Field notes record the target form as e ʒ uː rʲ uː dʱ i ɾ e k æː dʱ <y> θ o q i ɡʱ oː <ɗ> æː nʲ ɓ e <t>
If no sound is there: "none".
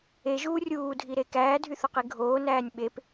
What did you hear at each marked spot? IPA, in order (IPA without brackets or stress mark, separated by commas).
y, n, p